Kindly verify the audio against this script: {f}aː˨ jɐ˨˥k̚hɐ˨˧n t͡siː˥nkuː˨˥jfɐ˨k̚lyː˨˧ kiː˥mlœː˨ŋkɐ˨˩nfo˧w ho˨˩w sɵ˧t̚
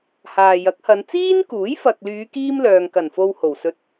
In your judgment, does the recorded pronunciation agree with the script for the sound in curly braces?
no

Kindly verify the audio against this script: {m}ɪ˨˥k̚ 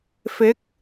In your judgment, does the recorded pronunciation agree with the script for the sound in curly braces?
no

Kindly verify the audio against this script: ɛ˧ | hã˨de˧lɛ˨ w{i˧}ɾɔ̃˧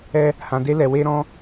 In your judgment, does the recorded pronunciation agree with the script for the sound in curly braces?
no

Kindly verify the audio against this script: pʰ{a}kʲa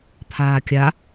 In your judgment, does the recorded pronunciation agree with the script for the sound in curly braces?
no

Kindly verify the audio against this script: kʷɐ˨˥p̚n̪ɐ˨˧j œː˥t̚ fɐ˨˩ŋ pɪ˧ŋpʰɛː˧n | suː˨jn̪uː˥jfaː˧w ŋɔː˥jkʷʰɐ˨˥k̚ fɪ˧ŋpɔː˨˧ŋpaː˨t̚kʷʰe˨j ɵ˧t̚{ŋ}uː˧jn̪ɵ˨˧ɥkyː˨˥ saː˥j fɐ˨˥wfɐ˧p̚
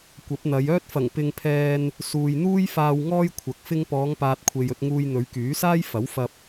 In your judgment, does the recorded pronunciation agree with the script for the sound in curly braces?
yes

